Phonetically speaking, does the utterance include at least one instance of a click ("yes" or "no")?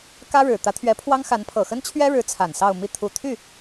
no